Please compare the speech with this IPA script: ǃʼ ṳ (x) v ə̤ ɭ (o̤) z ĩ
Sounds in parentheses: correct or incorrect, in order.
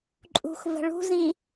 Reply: correct, incorrect: ṳ

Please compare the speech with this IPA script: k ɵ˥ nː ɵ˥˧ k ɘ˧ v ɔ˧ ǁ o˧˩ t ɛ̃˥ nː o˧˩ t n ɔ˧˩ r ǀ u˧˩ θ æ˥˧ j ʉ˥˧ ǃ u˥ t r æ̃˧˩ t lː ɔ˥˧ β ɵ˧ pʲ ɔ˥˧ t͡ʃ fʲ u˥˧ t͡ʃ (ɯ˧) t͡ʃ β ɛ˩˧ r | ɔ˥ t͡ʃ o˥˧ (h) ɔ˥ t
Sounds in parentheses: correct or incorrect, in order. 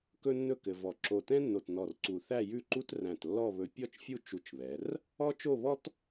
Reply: incorrect: u˧, incorrect: β

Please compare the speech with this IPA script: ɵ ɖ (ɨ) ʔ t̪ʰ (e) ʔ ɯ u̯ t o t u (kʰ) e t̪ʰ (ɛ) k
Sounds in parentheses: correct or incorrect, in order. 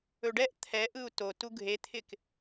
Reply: incorrect: ɛ, incorrect: ɛ, incorrect: ɡʱ, incorrect: ɪ

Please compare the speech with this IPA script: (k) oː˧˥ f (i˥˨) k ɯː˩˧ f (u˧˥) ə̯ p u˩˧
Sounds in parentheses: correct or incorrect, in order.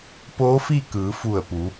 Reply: incorrect: p, correct, incorrect: u˧˩

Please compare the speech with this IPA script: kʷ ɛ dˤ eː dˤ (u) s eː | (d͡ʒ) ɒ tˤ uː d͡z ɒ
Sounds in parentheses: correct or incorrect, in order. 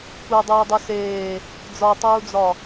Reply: correct, incorrect: d͡z

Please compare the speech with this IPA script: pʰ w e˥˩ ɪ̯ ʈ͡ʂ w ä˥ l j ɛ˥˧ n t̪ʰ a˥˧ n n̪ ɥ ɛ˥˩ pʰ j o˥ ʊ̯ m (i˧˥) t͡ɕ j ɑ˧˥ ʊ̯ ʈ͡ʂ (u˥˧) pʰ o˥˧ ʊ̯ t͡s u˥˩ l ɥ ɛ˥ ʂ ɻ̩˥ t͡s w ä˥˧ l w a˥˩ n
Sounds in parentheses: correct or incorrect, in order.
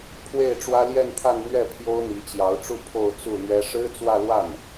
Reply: correct, correct

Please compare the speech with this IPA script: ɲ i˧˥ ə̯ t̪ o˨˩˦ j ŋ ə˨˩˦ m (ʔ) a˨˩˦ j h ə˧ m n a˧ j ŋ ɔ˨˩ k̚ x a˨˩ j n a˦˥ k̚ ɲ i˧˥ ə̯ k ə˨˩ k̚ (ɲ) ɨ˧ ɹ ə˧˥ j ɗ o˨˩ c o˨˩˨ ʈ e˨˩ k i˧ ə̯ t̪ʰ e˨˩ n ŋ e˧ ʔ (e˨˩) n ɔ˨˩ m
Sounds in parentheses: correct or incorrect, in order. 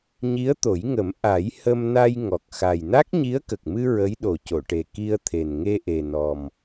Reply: correct, incorrect: m, correct

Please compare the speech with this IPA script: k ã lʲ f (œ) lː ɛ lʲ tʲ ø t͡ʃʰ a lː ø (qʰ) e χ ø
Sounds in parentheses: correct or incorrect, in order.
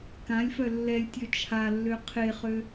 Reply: correct, correct

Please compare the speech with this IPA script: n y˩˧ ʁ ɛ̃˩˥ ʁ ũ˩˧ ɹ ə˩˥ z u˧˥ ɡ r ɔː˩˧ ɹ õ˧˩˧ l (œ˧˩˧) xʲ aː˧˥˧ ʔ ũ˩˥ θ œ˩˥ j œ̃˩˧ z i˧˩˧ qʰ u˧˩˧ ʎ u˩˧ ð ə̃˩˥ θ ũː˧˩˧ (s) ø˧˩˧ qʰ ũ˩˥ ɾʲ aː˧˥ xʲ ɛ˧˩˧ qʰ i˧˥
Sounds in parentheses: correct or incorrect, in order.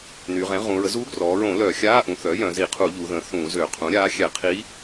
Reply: correct, incorrect: z

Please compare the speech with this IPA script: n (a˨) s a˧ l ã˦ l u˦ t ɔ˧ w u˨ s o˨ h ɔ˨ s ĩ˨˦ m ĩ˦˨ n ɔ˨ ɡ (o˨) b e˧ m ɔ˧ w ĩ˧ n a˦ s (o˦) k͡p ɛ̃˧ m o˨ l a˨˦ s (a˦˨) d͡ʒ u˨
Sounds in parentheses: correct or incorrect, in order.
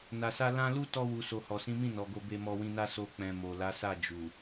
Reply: correct, incorrect: o˧, correct, correct

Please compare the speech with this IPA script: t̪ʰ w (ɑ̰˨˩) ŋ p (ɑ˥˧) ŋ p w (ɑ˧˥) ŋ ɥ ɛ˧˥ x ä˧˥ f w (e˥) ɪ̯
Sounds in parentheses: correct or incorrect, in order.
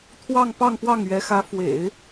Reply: incorrect: ɑ˥˧, correct, incorrect: ɑ˥˩, incorrect: ḛ˨˩˦

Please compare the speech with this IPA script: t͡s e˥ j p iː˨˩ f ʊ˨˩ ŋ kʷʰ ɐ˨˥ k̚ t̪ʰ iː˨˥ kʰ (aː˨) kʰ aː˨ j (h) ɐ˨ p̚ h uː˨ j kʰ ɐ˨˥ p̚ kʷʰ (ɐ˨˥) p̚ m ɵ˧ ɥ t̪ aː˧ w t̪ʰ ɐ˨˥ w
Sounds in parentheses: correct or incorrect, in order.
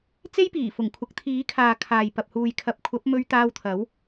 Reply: correct, incorrect: p, correct

